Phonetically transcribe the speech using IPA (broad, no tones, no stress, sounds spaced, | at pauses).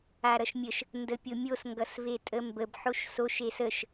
a ɾ ʌ ʃ mʲ ə ʃ | n d ə pʲ o mʲ o s ŋ ɡ ʌ s v e tʼ ə m b ə b ħ o ʃ s o ʃ e s ə ʃ